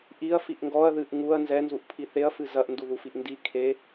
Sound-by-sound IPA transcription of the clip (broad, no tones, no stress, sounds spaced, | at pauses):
ʔ i ɐ̯ f i ʔ ŋ ɡ ɔ ɐ̯ ð ɨ ʔ ŋ u ɐ̯ n z ɛ n z u ʔ pʰ i θ e ɐ̯ f ɨ z ɐ ʔ n d u ð u f i ʔ n d i kʰ e